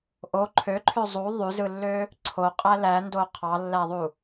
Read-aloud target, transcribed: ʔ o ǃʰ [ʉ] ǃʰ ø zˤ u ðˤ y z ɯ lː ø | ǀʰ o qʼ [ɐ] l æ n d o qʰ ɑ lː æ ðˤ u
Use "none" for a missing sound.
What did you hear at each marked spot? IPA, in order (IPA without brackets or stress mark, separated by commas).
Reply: ø, æ